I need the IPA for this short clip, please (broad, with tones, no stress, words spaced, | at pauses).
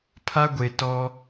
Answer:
pʰa˦ɡʷe˨ tɔ˦